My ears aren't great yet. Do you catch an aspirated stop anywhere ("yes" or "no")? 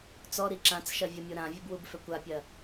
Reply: no